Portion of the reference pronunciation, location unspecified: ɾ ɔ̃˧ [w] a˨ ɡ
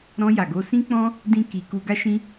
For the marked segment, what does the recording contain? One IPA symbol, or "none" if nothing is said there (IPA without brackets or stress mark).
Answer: j